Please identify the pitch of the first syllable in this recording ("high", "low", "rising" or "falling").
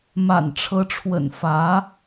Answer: low